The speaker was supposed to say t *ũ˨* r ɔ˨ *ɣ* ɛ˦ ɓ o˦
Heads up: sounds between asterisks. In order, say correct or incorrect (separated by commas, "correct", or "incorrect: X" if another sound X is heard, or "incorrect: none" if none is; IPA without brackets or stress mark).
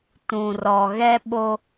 correct, correct